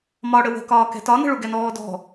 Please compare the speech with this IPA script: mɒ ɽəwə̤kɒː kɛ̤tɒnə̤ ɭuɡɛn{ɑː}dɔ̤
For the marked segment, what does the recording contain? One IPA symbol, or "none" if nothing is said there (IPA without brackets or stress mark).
ɔː